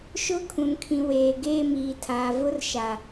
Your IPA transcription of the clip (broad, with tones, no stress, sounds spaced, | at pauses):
ʃ ʊ˦˨ kʰ ũ˨ n kʰ ĩ˨ w eː˨ ɡ eː˦˨ m iː˨ tʰ aː˨ v ʊ˦ r ʃ a˨